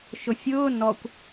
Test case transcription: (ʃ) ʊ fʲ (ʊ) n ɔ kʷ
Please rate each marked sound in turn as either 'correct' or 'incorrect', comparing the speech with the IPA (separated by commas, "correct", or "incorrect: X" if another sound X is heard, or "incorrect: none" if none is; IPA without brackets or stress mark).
correct, incorrect: ʊː